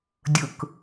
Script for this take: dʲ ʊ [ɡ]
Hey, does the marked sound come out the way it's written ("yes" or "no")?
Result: no